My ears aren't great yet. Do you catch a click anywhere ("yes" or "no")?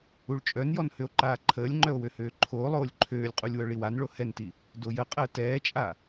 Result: yes